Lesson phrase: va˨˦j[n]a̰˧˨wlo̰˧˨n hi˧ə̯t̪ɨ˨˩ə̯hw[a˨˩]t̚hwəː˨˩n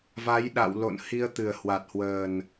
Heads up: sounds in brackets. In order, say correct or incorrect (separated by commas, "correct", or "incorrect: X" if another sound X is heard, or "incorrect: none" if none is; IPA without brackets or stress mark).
incorrect: ɗ, correct